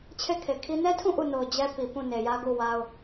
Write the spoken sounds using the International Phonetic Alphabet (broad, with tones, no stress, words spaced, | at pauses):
t͡ɕʰe˦˨kʰe˨kʰi˦ nɛ˦tʰũ˦˨ ʔu˦˨no˨ʊ̯ d͡ʑɛ˦pi˨ pũ˦˨ne˨jä˦ ɡu˦˨ wa˦ʊ̯